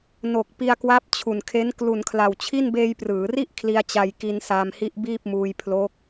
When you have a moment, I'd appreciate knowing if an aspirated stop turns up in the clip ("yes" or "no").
yes